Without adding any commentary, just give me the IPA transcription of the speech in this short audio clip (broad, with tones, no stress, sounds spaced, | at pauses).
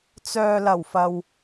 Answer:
t͡s œː˧ l ɐ˨˩ w f ɐ˨ w